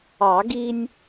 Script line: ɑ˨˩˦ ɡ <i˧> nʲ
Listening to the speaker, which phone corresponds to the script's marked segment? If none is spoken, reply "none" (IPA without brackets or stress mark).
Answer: i˧